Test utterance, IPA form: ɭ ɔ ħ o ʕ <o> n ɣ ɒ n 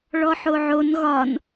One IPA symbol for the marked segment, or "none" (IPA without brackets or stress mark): o